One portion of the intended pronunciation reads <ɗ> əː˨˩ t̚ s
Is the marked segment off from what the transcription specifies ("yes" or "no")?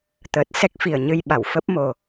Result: yes